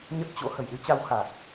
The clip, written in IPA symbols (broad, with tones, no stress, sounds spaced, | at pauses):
ɲ ə˦˥ t̚ t͡ɕ o̰˧˥ h ə˧˩ j ɗ ɨ˧ t͡ɕ a˧ w x a˨˩ t̚